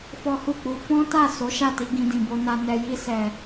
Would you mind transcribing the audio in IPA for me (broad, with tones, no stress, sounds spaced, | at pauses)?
f ɔ˦ h u˦˨ k͡p u˧ f ɔ̃˦ t a˦˨ s o˨˦ ʃ a˦˨ t i˧ ɡ ĩ˧ d ĩ˨ b o˧ n a˧ n ɛ˨ j i˧ s ɛ˨